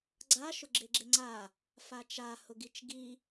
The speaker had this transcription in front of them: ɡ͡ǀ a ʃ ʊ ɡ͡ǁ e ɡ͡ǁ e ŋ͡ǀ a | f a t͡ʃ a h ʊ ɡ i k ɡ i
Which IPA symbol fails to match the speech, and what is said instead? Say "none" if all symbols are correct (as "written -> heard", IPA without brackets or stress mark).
k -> t͡ʃ